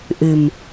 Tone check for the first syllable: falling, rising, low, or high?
low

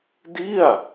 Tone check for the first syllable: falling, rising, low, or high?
falling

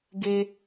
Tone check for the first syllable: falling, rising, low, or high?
high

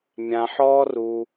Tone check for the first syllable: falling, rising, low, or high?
low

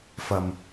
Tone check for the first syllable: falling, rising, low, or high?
low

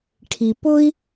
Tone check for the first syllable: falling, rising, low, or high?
low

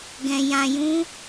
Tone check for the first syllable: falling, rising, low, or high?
low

